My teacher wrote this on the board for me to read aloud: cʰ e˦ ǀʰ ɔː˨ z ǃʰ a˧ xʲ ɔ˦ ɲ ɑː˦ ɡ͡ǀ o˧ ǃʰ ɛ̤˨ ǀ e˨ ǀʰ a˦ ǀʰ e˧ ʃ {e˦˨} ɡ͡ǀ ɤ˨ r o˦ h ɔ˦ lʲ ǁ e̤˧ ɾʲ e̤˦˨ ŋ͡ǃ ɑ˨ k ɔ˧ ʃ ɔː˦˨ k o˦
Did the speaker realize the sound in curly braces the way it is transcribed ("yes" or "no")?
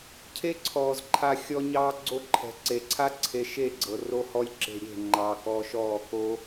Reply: yes